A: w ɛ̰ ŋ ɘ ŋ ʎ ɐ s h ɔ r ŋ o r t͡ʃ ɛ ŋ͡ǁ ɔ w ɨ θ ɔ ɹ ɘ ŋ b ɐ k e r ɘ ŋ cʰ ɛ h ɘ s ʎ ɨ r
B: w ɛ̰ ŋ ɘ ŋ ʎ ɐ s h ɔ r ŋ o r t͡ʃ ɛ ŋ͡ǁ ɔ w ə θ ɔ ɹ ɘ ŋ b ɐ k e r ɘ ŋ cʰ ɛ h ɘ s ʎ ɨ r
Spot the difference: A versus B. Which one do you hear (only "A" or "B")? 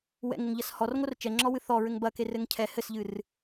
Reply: A